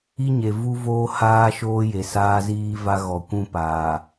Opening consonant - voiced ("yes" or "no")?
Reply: yes